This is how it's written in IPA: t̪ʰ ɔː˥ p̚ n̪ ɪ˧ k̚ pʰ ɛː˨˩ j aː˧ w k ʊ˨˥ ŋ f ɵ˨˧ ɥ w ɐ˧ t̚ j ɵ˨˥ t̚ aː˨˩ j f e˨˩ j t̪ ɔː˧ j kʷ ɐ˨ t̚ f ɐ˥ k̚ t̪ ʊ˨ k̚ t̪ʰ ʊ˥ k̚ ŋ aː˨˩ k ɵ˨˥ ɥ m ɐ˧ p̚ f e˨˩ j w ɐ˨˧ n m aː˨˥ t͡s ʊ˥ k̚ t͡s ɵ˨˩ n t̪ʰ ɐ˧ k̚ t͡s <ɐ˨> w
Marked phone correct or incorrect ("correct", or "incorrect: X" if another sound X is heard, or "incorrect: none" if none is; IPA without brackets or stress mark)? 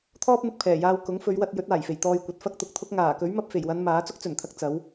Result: incorrect: ɐ˨˥